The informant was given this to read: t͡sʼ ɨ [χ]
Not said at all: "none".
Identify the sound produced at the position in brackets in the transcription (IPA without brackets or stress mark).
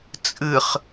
χ